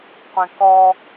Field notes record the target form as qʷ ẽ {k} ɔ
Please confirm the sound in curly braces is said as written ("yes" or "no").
yes